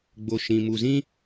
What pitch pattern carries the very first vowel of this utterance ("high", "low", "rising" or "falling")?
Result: low